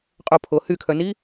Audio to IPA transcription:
qʼ o pʰ o h y kʰ œ n i

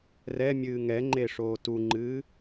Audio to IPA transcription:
r ɛ mʲ ɨː ŋ ɛ ŋ͡ǃ e ʂ oː t u ŋ͡ǃ ɨː

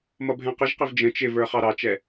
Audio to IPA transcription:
m ʌ bʱ ɛ̃ q ə ʒ q ɪ v d͡ʒ ə̃ t͡ʃ ɪ v ə˞ χ ɑ ɾ ɑ t͡ʃ ɛ

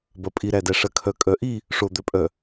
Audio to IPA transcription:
b ɐ pʼ i ɾ æ d æ ʂ ɐ kʰ œ kʼ œ ʔ i | ʂ o d̪ œ pʼ œ

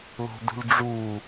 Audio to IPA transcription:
l o̤ d ṳ l ɖ͡ʐ u

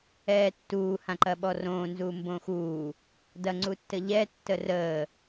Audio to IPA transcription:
ɛː tː uː h ã ǃ ɐ ɓ ɔ r õː n z uː m b õː x uː | d ɐ ŋ͡ǀ u tː ə ʎ ɛ tː ə r əː

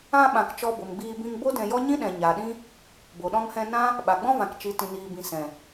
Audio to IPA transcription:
ã˧ ɓ ã˨ k t͡ʃ ɔ˧ b o˨ m ɡ͡b iː˧ b ĩ˧ ŋ b o˦ d ɛ̃˧ j ɔ˦ ɲ ĩ˦ ɗ ɛ̃˨ ɲ a˨ ɗ ĩ˦ | b o˨ ɗ ɔ̃˧ ŋ h ɛ̃˧ n ã˦ | ɓ a˨ ɡ͡b ɔ̃˦ v ã˨ k t͡ʃ i˨ t ĩ˨ n iː˨ b ĩ˨ s ɛ̃˨

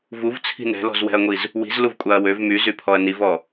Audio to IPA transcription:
v u v t͡sʰ i̤ n ɛ̤ l ɔ̤ z w ɛ̤ ɐ̯ ŋʷ i z | w i̤ z l u v kʷʼ a ɐ̯ w ø v m y z y pʰ ɔ ɐ̯ n i v ɔ

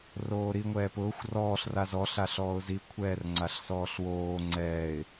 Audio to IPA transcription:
r oː ɾ i ŋʷ ɛː p ʊː xʷ r ɔː ɬ r a z ɔ ɬ a ɬ ɔː ʊ̯ z i kʷʰ ɛː r ŋ͡ǀ a ɬ s ɔː ɬ w oː ŋ͡ǀ ɛː ɪ̯

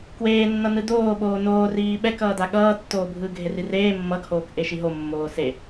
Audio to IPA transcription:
k w eː nː ʌ n ɯ d oː ɓ oː n oː r iː ɓ ɛ k ʌː d a ɠ ʌː tː oː bʱ ɯː ɡʱ e r i r eː mː ʌ ɡ h oː k ʔ e ʃ i ɦ o mː oː s e

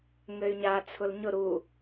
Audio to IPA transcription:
ŋ ɘ y̯ ɲ a t͡sʰ ʊ l ɲ ʊ ɾ u

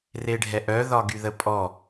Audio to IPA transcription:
r e ɖʱ ɛ ʔ œ ð ɒ ɡ y ð ə pʼ ɔ

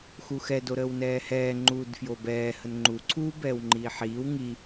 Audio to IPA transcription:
x u x ɛ d o ɾ əː w n ɛː h ɛː ŋ͡ǃ uː d f j o b ɛː h ə n ŋ͡ǃ u ǀʰ uː b ɛː w ŋ͡ǃ iː ħ iː w ŋ i

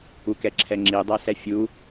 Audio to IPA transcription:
u k ɛ ǁʰ ɛ ŋ͡ǁ i dˤ ɛ s ɛ fʲ u

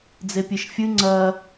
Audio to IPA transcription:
d͡z e pʲ e ʃ fʲ ɨ ŋ͡ǀ ɐ

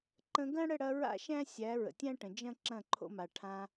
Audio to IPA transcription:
ǃ ə̃˧ ɡ ɐ̃˦ ɽ ə˦˨ ɽ ɐ˧ ɹ a̰˦ ʃ æ̃˦ sʲ æ˨˦ ɹ ə̰˨ tʲ æ̃˦ ʈ ə̃˨ d͡ʒ ɐ̃˦ ǁ ɐ̃˦˨ ǃʰ o̰˧ m a˨ ʈʰ ã˧

